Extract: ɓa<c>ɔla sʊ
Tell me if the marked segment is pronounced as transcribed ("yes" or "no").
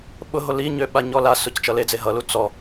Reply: no